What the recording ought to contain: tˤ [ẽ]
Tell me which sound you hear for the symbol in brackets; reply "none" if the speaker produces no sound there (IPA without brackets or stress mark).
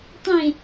ẽ